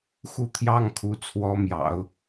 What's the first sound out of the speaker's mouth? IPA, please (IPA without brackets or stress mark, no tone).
x